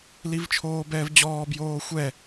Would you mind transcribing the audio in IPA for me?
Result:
l i v t͡ʃʰ oː b ɛː v d͡ʑ ɔː b j oː xʷ ɛ

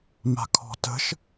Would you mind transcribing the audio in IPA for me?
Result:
m a̤ kʰ ɔ̤ t ə̤ ʃ

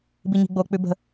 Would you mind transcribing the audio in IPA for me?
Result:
b i ɲ i̤ ɡ͡b o k͡p ʉ b ə̤

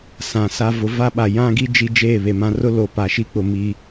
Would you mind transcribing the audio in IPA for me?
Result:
s ã˨ s a˦ v ʊ˨˦ v a˦ ɓ a˨ j ã˦ ɡ i˦ d͡ʒ i˦ d͡ʒ eː˦˨ β e˨ m ã˦ r ʊ˦ l o˨ p a˨ ʃ i˦ k͡p ʊ˨ m i˦

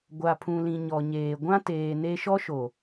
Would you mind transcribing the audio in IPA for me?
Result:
ɡʷ a˨ pʰ ũ˨ l ĩ˨ ɲ ɔ˨ ɲ eː˨ ɡʷ ã˦ t eː˨ n e˦ ʃ ɔ˦ ʃ o˨

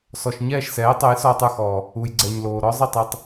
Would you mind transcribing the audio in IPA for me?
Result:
s ɔ˩ ʃ ɲ ɛː˥˩ ʃ s ɛː˩˥ tˤ o˩˥ j s ɔː˧ tˤ ə˞˥˩ x ɔː˩ | u˩ j ɡ͡ǀ ɛ˩ ɲ l oː˩ ɾ ɔ˥ zˤ i˥˩ tˤ ɛ˧ tˤ

